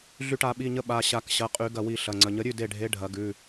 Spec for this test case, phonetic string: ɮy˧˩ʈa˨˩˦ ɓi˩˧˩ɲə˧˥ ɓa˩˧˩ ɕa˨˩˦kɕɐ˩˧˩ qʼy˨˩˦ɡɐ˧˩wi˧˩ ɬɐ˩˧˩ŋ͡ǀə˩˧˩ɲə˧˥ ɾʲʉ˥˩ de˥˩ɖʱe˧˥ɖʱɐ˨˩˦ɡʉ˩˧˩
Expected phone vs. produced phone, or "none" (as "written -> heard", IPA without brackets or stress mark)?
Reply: none